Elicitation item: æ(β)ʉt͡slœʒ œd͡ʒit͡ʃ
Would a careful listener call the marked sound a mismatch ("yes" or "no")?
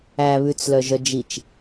no